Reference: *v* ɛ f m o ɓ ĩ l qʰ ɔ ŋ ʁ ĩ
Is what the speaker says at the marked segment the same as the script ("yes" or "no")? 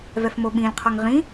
yes